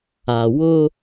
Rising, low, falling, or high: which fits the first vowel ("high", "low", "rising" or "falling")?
low